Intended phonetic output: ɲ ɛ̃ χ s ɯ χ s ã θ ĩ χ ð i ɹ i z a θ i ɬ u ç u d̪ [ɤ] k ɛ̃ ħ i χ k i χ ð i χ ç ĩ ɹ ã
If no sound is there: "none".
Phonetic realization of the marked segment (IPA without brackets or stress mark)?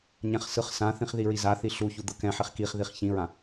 ɤ